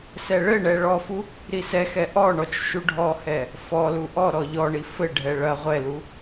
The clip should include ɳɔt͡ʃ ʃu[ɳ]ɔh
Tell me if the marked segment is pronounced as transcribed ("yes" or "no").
no